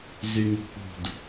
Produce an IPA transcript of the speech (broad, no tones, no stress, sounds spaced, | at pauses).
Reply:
z y ŋ ṳ k͡p ṳ d